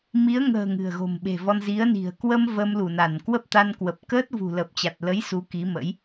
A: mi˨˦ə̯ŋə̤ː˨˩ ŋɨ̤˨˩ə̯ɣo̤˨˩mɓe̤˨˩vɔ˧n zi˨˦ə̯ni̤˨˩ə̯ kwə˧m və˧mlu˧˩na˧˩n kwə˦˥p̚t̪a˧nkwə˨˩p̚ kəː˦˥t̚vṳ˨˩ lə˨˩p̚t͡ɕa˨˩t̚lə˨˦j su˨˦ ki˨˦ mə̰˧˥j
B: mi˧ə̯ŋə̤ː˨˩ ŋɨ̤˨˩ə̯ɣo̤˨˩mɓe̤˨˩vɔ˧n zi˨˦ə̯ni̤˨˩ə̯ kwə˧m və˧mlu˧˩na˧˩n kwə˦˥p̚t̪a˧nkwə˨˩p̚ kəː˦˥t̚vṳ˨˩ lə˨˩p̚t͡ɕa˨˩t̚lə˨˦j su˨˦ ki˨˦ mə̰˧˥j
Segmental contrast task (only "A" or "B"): A